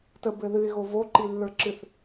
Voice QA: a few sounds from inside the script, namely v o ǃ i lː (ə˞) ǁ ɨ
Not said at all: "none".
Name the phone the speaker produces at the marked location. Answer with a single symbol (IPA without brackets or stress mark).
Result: ə˞